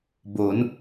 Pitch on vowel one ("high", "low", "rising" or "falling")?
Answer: rising